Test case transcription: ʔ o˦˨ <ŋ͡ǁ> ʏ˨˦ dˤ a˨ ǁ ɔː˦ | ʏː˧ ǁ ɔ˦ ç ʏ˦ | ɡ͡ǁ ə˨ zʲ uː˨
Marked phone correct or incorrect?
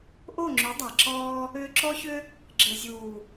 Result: correct